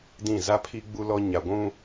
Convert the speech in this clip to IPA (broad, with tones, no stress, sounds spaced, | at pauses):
d ĩ˦˨ z a˦ pʰ i˦ ɡ͡b u˦ l ɔ˦ ɲ a˨ ɡʷ ũ˦